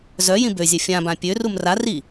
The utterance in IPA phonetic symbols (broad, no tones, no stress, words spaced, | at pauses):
zœ jĩbøzʲɛ fʲãbã pʲørum ra ri